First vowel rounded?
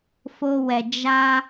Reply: yes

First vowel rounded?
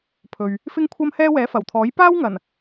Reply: yes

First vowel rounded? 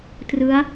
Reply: no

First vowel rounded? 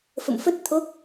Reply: no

